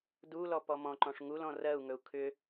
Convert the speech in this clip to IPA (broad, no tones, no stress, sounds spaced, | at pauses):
d u l ɔ p ɔ m ɔ̃ ǃ ɔ̃ ʂ ŋ u l ɔ̃ r ɜ u̯ ŋ ɵ u̯ kʰ ʏ